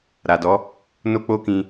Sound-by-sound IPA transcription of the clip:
ɾ a˨ d ɔ˨˦ | n o˦ k͡p o˦ k ĩ˧

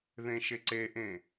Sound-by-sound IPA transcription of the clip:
ð ẽ ʃ e ǀ e ʔ ẽ

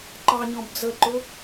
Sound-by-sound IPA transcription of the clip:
ǃ ɑ ɲ ɔ̃ b d͡z ə ǃ ʊ

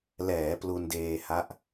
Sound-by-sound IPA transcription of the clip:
l ɛː˩˦ p l u˧ n d eː˧ h a˦˥ ʔ

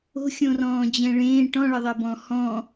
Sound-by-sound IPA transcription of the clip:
o̤ xʲ õ r ɔ̃ː d͡ʑ ɛ̃ ɭ ẽː ʈ ɔ̃ ɭ ɘ ðˤ e b ɔ̃ h ɔ̃

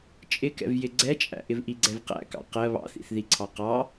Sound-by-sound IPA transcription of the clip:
t͡ʃʼ ɪ k ɛ̰ v j ɪ ɡ͡ǀ ɛ t͡ʃʼ æ̰ ʔ ɪ v ʔ i ɡ͡ǀ ɛ v q æ̰ k ɑ̰ q ɜ β ɑ̰ θ ḭ θ ð i ǀʰ ɑ q ɑ

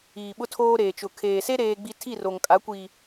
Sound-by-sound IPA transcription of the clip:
iː˨ ɓ ʊ˦ tʰ oː˦ ɾ eː˨ t͡ʃ ʊ˨ kʰ eː˨ s e˦ ɾ eː˦ ɡ͡b i˦ tʰ i˦˨ r o˨ ŋ kʼ a˨˦ kʷ i˨

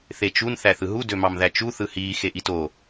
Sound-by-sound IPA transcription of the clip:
θ e t͡ʃ u n θ æ θ ɯ ɦ u d ø m ɑ m ð æ t͡ʃ u θ ɯ h iː x e ʔ i t o

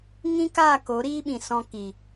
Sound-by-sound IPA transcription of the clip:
ŋ ĩ˦ k a˦˨ k o˨˦ ɾ iː˦ ɓ ĩ˨ s ɔ̃˧ k i˨

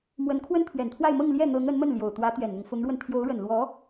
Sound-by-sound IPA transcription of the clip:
m w ə˧˥ n kʰ w ə˥ n t̪ʰ ɥ ɛ˨˩ n t̪ʰ w a˥˧ ɪ̯ m ɤ˥˧ ŋ l j ɛ˥˩ n̪ ɤ˧˥ ŋ ə˧˥ n m ə˥˩ n l j o˨˩ ʊ̯ t̪ w ä˧˥ t̪ ɥ ɛ˨˩ n n̪ ʊ˦ ŋ f ʊ˧˥ ŋ ɻ w ə˧ n t̪ʰ j o˧˥ ʊ̯ ɻ ə˨˩ n l w ɔ˧˥

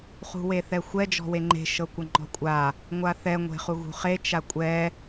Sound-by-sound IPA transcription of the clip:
χ ṳ w e θ ɛ xʷ ɛ d͡ʒ ɔ̤ w e ŋ͡ǃ e̤ ʃ ɤ kʷ ɤ ŋ͡ǃ ɔ̤ kʷʼ a | ŋʷ a θ ɛ ŋʷ e̤ χ u ɣ ṳ χ e t͡ʃ a kʷʼ ɛ

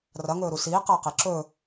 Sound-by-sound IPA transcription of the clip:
r ɐ ŋ ɵː ɾ u s iː q ɐː q e ǁ ɵ

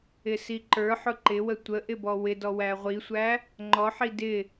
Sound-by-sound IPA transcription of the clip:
ɪ s i ǃ ə˞ ħ ʊ ǃ ɪ w ə tʷ ə ʔ ɪ b ɔ w ɪ d ɔ w æ ʁʷ i sʷ æ | ŋ͡ǃ ɔ ħ i d ɪ

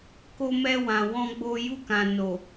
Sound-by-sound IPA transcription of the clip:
k o˦ m ɛ˦ w ã˧ w ɔ̃˦ ɡ͡b o˦ j u˦˨ k ã˨ n o˨

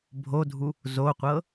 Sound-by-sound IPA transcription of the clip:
bʱ o dʱ u | z o qʷ ɤ

